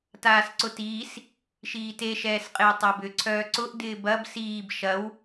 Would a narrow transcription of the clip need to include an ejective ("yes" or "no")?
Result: yes